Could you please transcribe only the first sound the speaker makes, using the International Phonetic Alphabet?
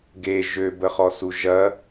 ɡ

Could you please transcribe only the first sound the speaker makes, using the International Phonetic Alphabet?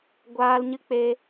ɡʷ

